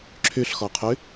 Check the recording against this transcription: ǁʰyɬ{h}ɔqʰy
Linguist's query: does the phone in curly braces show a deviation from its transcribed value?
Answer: yes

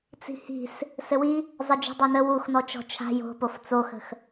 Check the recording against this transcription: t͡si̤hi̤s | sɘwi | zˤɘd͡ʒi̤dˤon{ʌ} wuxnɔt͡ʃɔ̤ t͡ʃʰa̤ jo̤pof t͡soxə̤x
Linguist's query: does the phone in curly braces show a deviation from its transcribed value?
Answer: yes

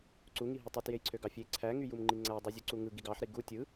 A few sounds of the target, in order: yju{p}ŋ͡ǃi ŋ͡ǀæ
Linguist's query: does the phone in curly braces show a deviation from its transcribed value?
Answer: yes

